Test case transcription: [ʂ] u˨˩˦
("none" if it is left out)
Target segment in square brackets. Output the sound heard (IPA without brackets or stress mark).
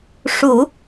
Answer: ʂ